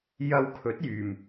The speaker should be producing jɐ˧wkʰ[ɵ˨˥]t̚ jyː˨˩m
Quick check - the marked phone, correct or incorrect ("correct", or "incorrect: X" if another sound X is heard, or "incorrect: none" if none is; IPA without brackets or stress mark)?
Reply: correct